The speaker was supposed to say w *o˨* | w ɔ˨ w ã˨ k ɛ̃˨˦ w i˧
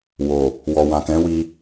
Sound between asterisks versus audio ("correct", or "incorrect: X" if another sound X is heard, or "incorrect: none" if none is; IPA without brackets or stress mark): correct